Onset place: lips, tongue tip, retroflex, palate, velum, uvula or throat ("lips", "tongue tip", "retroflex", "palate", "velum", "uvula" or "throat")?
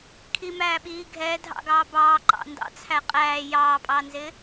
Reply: velum